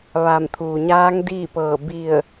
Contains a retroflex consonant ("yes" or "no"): no